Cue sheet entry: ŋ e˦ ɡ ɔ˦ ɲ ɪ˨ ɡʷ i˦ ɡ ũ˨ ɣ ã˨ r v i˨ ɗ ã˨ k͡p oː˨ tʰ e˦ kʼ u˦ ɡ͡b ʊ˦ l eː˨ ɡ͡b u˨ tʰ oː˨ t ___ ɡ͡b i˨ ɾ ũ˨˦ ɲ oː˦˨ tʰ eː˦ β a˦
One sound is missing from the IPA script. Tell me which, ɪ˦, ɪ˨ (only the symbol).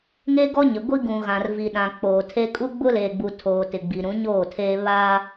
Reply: ɪ˨